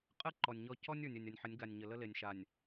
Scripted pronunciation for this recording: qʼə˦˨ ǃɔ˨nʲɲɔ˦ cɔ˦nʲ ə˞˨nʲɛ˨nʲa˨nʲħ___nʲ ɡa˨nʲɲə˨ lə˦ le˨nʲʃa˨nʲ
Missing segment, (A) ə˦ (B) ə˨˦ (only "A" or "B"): B